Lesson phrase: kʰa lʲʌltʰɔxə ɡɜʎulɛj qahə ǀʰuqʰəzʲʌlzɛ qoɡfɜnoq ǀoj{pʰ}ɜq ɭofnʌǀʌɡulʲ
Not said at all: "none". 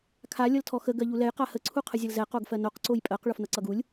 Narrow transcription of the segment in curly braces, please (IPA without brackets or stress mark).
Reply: pʼ